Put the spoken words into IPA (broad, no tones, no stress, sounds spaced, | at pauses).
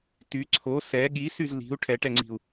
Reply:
t y ǀʰ o s ɛ ɠ i s y z l i̤ u̯ ʈʰ ɛ ʈ ɛ ŋ͡ǀ i̤ u̯